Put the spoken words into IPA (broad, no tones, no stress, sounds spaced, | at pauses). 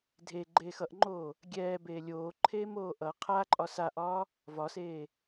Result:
dʱ e ɡ͡ǃ eː x ʌ ʔ ŋ͡ǃ oː | ɡʲ ɛː b eː lʲ oː ǃʰ eː m oː ʔ ʌ qʰ a ǃʼ ɒ s a ʔ ɒː | v ɒ s eː